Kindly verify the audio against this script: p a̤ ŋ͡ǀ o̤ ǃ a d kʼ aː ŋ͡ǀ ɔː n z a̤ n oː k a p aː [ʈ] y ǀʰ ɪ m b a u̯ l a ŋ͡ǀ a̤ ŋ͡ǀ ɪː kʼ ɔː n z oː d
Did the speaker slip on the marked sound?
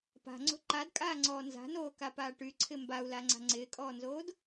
no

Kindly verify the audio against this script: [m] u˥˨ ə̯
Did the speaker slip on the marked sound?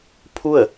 yes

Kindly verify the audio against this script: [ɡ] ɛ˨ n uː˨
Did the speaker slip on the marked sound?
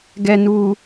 no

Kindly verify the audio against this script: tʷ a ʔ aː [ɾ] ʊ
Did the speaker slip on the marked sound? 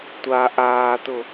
yes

